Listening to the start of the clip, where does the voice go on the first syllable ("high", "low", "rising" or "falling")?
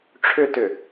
low